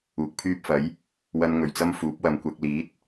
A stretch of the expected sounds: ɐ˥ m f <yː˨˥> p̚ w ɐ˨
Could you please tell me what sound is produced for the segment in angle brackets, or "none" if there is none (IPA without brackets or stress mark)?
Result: uː˨˥